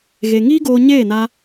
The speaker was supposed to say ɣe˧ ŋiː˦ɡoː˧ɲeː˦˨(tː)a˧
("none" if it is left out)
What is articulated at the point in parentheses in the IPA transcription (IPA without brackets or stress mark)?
n